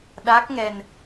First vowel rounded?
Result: no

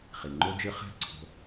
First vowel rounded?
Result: no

